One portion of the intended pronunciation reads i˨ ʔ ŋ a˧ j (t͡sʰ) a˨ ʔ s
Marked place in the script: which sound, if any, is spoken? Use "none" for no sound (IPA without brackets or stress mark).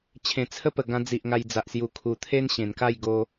d͡z